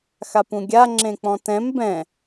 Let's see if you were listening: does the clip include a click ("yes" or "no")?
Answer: yes